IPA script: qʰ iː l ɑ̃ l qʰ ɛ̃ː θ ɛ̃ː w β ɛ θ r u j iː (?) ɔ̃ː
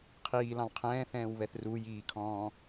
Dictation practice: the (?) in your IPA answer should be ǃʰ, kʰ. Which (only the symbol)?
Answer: kʰ